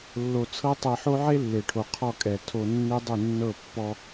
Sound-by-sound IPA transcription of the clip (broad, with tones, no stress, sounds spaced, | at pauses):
lː o˧ t͡sʰ ɤ˦ tˤ e˧ ħ o˦ ʕ e˦ lː e˨ ʈʰ o˨ qʰ ɔ˧ kʼ ɛ˨ tʰ o˧ nː e˦ dˤ u˦˨ nː ɤ˦˨ pː ɔ˧